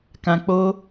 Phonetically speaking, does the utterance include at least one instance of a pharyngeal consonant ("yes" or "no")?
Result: no